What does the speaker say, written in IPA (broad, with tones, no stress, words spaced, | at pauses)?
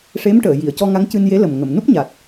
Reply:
ʂe˧˥mʈəː˨˩˨ ji˨˩˨ə̯cɔ˧ ŋa˧˥ŋcɨ˧nje˧˥lə˨˩m ŋə˨˩˨mnu˦˥p̚ɲa˨˩t̚